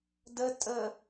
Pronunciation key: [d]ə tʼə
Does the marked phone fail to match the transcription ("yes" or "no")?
no